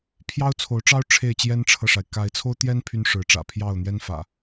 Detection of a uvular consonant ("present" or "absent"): absent